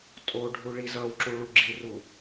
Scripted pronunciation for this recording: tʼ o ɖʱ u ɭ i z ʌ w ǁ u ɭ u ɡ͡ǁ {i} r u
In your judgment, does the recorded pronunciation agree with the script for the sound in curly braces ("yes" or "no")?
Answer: yes